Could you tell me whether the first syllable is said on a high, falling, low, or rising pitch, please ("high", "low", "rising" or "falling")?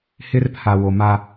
high